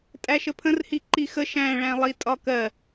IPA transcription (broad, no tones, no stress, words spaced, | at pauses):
tʼæʃəpʰə̃rhi ǃixə ʃæ̃ɭæ̃ lˠitʼɒkɜ